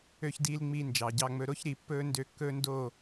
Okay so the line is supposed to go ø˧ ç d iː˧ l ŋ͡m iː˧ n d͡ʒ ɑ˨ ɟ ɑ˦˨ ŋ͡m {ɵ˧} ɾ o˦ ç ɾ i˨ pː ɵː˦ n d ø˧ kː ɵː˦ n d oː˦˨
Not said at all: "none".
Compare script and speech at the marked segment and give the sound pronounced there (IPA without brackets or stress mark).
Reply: ɵ˧